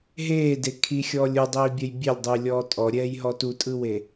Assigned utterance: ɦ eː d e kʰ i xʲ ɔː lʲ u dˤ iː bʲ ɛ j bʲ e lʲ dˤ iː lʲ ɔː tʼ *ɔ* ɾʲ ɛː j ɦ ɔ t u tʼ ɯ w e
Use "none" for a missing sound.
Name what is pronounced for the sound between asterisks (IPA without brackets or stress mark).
ɔ